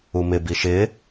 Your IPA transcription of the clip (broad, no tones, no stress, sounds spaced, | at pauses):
u m ɪ b i ʃ ɪ